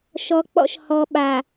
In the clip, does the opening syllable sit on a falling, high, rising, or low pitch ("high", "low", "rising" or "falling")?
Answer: low